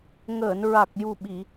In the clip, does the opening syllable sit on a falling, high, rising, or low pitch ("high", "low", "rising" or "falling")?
low